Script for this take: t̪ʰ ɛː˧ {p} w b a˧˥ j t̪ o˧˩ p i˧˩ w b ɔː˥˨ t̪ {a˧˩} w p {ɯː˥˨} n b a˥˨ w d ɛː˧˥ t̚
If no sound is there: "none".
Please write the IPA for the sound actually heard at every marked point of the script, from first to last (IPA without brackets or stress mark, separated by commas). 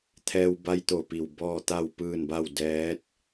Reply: none, a˥˨, ɯː˥˨